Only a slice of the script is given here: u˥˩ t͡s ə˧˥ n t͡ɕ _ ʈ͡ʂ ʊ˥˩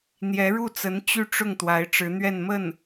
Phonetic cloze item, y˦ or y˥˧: y˥˧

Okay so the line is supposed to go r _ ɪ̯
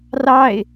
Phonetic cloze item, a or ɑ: ɑ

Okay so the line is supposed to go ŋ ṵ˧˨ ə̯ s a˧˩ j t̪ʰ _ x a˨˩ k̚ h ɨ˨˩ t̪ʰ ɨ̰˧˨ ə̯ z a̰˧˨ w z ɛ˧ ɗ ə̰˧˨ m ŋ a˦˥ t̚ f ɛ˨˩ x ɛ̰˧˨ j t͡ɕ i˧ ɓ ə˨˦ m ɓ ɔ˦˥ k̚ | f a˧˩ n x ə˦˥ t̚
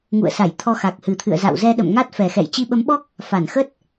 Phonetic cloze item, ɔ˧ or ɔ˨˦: ɔ˧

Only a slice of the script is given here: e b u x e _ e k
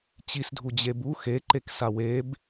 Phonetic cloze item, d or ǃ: ǃ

